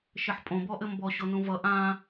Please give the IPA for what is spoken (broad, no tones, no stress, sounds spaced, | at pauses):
ʃ ɘ ħ pʼ õ b ɔ ʔ ɘ m b ɔ ɕ o n ũ v ʌ ʔ ã